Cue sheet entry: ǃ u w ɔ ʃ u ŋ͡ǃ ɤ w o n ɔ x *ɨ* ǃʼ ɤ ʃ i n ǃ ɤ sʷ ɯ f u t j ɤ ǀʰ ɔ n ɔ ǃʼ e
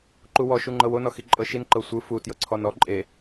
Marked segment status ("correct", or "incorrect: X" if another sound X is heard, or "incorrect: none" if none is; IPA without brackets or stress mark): incorrect: i